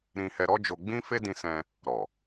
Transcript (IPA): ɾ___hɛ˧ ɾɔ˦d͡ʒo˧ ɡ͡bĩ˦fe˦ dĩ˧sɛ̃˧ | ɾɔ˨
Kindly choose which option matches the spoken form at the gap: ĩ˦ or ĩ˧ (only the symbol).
ĩ˧